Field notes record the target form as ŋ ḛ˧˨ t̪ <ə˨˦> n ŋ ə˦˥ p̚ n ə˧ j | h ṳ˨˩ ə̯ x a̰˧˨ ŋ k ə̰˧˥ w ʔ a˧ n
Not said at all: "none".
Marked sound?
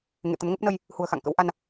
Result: ə˨˦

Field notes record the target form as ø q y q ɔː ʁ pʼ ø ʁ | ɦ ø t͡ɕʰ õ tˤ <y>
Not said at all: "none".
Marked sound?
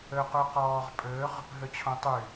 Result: y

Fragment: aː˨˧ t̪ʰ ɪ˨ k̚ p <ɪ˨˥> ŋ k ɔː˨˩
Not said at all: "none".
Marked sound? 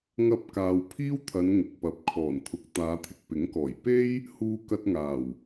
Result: ɪ˨˥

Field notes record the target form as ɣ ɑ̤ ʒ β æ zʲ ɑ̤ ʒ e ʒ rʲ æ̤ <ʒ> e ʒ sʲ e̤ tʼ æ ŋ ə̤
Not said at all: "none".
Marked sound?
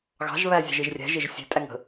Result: ʒ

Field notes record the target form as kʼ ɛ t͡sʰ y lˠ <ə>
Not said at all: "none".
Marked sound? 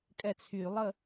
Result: ə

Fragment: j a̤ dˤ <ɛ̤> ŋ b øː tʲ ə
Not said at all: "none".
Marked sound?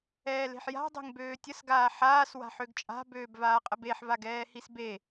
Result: e̤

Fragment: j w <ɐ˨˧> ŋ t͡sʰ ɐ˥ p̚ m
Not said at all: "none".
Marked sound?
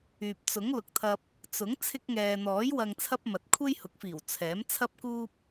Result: ɐ˧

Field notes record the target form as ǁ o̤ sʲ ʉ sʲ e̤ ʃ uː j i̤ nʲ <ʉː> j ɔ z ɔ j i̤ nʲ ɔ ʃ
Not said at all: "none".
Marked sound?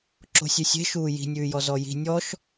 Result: ʉː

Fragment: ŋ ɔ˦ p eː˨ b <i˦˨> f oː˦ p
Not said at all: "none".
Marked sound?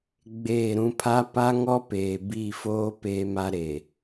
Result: i˦˨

